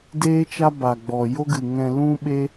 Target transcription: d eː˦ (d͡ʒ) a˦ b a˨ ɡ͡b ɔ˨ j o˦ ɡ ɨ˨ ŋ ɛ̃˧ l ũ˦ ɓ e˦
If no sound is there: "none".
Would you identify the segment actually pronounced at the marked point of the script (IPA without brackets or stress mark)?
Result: t͡ʃ